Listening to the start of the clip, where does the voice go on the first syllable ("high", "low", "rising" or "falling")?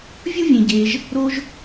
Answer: high